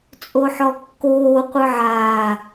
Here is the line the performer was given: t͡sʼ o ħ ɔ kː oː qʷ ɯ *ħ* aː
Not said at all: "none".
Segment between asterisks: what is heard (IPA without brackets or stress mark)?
ʕ